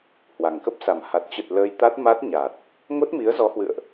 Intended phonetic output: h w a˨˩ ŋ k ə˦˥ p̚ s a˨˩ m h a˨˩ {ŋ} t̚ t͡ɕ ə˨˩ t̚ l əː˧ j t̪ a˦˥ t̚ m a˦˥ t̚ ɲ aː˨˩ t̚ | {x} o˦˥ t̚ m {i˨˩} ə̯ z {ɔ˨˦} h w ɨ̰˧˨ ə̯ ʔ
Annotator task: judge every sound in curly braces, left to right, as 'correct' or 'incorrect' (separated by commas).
incorrect, incorrect, incorrect, correct